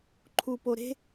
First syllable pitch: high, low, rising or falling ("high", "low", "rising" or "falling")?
high